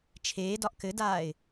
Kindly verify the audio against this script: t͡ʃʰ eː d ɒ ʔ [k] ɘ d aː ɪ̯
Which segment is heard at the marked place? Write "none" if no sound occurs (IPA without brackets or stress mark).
k